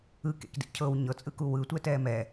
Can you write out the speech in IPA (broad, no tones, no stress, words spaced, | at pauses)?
ɯ kḛkdḭcʰɤw ɲɤt͡sʼɯku wɯtʷɛ tɛːmɛ